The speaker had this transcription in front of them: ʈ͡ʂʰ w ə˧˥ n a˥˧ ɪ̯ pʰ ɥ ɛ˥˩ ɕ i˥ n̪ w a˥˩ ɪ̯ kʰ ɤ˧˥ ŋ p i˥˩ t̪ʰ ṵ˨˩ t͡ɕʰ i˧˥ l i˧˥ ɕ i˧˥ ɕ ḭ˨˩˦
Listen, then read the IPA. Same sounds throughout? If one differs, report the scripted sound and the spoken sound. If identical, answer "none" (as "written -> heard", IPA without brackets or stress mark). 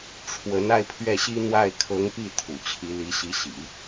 none